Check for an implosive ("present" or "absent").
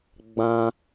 absent